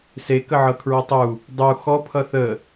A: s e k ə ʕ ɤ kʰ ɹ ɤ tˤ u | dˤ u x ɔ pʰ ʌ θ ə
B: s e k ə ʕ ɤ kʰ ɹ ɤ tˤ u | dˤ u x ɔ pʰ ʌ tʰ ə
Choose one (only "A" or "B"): A